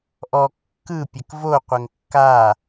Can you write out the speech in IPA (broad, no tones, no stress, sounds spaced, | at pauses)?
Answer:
ʔ ɔ kː ɯ pʲ ɛ k v o qʷ ɛ ŋ kː a